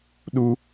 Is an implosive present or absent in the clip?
present